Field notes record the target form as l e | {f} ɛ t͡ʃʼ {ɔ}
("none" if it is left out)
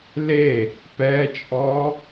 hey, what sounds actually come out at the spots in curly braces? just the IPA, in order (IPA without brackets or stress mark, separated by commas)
p, ɔ